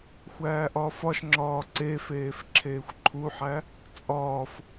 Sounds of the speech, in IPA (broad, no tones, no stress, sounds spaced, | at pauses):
xʷ æː ʔ ɒː f ɒ ʃ ŋ͡ǁ ɒː ǀ e f eː f ǁʰ eː xʷ ǃʰ u ħ æ | t͡sʼ ɒː f